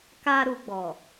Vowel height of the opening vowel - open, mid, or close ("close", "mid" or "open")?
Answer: open